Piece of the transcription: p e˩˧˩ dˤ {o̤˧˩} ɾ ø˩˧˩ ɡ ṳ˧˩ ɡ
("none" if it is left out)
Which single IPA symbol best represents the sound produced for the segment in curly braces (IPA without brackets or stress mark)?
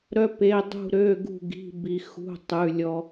ṳ˧˩